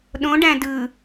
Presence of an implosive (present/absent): present